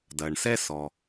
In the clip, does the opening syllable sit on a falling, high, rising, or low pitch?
low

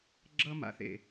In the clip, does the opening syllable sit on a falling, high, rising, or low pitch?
high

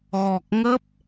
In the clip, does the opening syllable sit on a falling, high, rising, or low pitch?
low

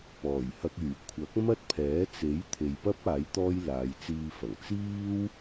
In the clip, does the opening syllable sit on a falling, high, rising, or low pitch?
low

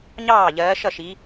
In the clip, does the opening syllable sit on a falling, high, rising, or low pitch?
falling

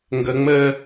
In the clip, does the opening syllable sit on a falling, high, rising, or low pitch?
high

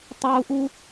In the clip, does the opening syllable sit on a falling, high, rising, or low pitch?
high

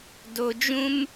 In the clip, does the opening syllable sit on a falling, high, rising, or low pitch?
low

